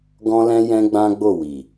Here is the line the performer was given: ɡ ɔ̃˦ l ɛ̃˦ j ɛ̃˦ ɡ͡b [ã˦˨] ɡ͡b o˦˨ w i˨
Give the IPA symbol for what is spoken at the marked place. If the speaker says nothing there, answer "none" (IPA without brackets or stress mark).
ã˦